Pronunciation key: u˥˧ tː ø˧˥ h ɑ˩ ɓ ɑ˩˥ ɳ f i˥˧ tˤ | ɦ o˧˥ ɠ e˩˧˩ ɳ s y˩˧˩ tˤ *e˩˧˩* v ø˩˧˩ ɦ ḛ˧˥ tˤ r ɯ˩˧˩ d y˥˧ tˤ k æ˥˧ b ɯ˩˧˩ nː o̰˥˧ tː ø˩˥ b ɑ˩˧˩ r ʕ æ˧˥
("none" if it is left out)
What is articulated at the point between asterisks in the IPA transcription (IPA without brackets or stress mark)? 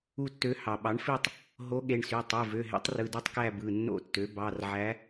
e˩˧˩